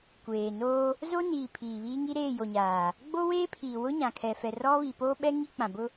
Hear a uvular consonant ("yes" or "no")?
no